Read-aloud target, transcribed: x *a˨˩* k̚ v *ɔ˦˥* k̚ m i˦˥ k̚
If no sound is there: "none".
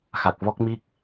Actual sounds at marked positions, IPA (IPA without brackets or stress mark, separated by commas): a˨˩, ɔ˦˥